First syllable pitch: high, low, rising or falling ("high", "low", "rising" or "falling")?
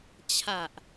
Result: low